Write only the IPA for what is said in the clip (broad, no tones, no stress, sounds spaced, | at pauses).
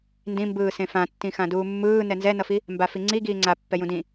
n d ĩ m b ɯː s ẽ f ã tː ĩ x ã d uː mː ɯː n ɛ n z ɛ n ʌ f i | m b a f i ŋ͡ǀ i ɡ iː ŋ͡ǀ a pː ɛ j ũ d ĩ